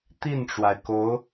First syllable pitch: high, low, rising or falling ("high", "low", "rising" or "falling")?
falling